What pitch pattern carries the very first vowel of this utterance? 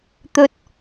low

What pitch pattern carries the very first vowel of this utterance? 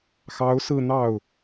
rising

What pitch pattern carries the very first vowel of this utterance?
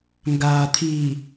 low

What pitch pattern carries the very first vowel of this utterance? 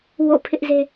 falling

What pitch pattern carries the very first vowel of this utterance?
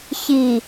low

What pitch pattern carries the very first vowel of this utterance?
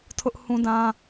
high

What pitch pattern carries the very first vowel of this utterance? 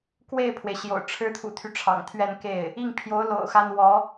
falling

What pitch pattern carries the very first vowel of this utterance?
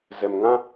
low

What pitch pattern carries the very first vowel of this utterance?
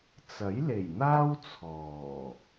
rising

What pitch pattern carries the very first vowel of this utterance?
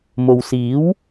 low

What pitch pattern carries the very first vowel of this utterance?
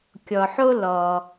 low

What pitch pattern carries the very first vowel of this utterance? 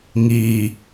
low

